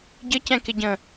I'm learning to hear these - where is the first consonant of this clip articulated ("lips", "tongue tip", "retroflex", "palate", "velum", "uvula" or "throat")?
palate